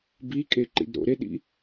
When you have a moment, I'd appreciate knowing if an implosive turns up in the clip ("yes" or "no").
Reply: yes